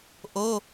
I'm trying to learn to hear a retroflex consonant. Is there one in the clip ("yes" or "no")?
no